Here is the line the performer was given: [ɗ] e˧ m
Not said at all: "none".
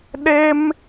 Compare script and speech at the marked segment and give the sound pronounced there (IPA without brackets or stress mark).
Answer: ɗ